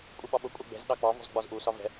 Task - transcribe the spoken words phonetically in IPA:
kʷʼ ɪ ɓ ɒ ɓ ʊ kʷʼ ɛ ɡ͡b ɛ̤ z ɗ ɑ k͡p ɑ v ɔ̤ z ɡ͡b ɒ z ʔ u s ɒ v ɛ̤

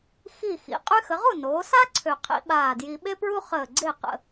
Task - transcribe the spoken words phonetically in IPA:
x i˧˩ x ḭ˩˧ qʼ y˧ x ə˩˧ ʁ u˥˩ n oː˩˧ s a˥ ǀʰ ø˧˩ qʰ ḭ˥ ɓ aː˧˩ d j i˧ ɓ e˥ p ɹ u˥ χ əː˧˩ ɡ͡ǀ e˥˩ q ə̰˥˩

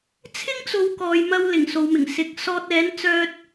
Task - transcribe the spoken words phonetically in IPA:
t͡sʰ ɪ˥ ŋ t͡s o˨˧ w k ɔː˨ j m ɐ˧ w l ɪ˨˩ ŋ s o˨ w m ɪ˨˩ ŋ s ɪ˨ k̚ s ɔː˧ t̚ ɛː˨˥ n t͡s œː˧ t̚

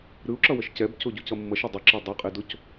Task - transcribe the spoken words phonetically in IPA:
ɾ ɯ u̯ ǁ ʌ w ʌ ʃ c ɛ b c o ɟ u c ʌ mː ʌ ʃ e dˤ i ǁ ʌ dˤ ʌ qʼ i d o c

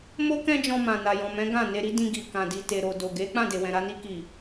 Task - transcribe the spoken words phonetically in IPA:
m o˦ k ɛ̃˦ d͡ʒ ɔ̃˧ m ã˨ n a˨ j ɔ̃˨ m ɛ̃˨˦ ɡ ã˦˨ n e˧ ɾ i˦ d ĩ˧ ɡ i˨ k ã˨ d i˨ t e˨ ɾ o˨ d o˨ ɡ e˨˦ k͡p ã˦˨ d e˨ w ɛ̃˨ ɾ a˧ n i˧ k i˨

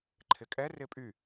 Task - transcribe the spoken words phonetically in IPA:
ǃʰ ɪ kʼ ɛ r ɪ pʼ y

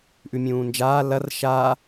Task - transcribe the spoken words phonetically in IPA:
ʔ ʉ mʲ ũː n d͡ʒ aː l ɐ r ʃ a

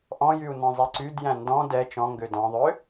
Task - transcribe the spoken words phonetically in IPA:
ʔ ɔ̃ j y u̯ n ɔ̃ zˤ ɛ ǀ y d j æ̃ n d ɔ̃ d ɛ t͡ʃ ɔ̃ ŋ ɡ ø d ɔ̃ ðˤ ø

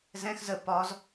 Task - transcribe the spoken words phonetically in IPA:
z ɛ̃ x z ə p ɒ z

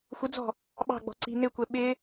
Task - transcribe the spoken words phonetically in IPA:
xʷ ə d͡z ɔ̤ | ɓ ɑ̤ ɡ͡b ɔ̤ ǀ i̤ n ɪ kʷ ɛ ɓ ɪ

